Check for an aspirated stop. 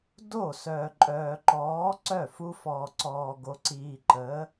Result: absent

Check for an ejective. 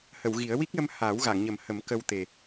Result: absent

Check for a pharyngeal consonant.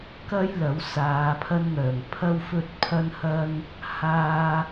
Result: absent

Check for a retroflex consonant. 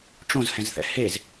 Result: present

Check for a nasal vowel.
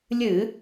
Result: absent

